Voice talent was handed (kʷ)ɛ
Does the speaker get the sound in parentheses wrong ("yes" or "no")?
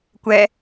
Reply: no